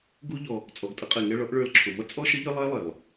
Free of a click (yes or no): no